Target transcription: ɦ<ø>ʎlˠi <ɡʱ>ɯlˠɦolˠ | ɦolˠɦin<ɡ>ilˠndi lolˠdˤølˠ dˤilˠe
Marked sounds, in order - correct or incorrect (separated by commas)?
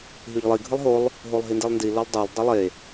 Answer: incorrect, correct, incorrect